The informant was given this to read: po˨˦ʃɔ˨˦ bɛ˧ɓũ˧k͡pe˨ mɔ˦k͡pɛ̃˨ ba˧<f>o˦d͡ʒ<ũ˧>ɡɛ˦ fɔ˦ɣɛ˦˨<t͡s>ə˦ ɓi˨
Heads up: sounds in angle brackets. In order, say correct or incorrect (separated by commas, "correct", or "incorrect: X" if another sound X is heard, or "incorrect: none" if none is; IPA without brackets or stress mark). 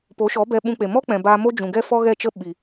incorrect: m, incorrect: ũ˨, incorrect: t͡ʃ